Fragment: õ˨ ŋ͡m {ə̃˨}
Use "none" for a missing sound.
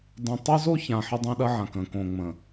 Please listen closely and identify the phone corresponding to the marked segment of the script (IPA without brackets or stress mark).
ə̃˨